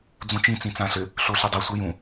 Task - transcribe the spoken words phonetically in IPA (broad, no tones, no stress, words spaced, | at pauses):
d͡zũt͡ʃĩ t͡sĩt͡sãɬɘ | ɬoɬidˤi sʷɐjũ